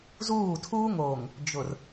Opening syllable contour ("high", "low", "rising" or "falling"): falling